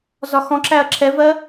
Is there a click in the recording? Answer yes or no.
yes